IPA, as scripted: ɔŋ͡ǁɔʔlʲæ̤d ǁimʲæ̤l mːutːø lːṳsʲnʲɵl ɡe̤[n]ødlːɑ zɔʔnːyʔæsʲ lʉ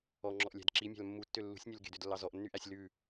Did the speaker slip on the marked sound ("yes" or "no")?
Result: yes